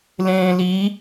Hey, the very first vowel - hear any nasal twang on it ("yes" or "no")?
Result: yes